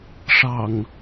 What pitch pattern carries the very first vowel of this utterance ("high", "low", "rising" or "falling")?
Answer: low